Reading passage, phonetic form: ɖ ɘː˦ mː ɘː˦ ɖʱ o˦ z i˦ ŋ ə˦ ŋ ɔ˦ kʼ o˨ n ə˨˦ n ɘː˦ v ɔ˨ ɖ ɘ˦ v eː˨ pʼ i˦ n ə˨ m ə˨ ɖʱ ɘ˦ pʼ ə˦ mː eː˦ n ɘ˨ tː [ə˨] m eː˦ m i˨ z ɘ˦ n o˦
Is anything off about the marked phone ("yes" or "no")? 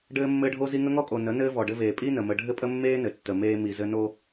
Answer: no